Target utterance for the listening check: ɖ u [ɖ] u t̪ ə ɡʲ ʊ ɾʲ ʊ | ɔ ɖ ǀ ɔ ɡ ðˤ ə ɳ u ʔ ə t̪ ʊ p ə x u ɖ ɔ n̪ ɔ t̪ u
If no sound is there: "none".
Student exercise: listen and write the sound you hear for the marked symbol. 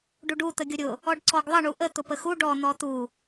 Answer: ɖ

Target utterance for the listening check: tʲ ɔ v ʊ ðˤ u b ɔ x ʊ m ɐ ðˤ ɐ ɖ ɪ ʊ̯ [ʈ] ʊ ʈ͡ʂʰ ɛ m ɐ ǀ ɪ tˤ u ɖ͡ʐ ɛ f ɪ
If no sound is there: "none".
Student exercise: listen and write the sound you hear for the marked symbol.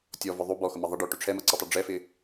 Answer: ʈ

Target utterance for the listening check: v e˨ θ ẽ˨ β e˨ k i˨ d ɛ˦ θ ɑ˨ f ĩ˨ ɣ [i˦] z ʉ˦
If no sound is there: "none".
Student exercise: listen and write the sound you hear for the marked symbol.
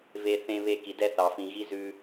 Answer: i˦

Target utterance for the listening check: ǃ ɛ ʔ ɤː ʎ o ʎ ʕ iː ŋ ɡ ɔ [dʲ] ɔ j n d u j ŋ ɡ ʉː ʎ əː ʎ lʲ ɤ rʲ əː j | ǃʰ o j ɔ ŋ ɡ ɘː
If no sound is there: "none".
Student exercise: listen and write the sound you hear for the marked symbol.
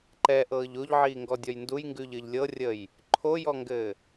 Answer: dʲ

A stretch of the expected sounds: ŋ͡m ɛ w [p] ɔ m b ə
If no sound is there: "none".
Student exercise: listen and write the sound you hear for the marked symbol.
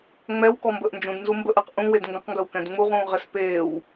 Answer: k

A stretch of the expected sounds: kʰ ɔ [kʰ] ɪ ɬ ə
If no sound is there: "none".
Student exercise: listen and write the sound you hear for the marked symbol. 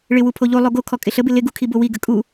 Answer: kʼ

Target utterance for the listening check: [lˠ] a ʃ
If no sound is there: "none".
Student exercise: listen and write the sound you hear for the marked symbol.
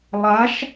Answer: lˠ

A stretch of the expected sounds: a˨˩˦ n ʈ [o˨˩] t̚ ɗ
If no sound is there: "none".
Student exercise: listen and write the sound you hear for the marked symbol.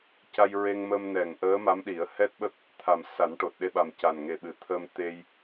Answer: o˨˩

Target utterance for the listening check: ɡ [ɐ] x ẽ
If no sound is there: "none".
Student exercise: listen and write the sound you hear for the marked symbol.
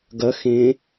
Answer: ɐ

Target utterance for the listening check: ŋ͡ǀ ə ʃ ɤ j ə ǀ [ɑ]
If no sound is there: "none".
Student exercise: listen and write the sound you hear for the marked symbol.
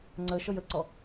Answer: ɔ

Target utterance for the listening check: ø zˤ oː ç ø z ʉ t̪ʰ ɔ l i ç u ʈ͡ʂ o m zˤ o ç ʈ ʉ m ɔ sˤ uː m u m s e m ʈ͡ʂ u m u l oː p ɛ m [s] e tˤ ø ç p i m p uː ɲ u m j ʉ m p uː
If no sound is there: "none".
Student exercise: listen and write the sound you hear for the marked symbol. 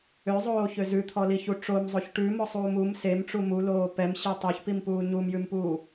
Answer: ɕ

